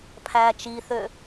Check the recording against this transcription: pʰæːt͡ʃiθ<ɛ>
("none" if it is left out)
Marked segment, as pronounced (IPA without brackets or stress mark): ø